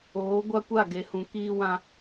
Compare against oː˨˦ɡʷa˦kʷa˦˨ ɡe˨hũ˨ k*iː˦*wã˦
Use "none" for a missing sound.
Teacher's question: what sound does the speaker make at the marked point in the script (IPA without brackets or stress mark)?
iː˦